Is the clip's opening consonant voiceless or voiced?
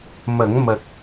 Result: voiced